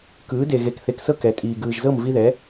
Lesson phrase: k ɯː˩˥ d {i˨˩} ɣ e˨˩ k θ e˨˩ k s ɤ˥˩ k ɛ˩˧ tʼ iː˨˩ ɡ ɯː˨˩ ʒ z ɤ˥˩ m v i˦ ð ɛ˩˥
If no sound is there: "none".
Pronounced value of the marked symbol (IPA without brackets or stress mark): e˨˩